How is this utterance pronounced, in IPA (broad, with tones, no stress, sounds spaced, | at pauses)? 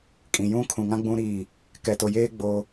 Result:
kʼ ĩ˨ j ũ˦ kʰ ũ˨ ŋ ã˦ ɡ͡b ũ˦ ɾ i˦˨ | k ɛ˨ t o˨ j eː˦ ɡ͡b o˦